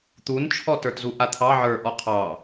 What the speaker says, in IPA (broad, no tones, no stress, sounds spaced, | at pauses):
t̪ u n t͡ʃʰ ɔ t ə˞ t z u ʔ a t̪ʰ ɑ ʕ ə˞ ʔ ɔ qʰ ɑ